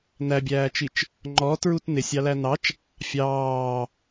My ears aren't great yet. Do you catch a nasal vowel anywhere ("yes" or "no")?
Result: no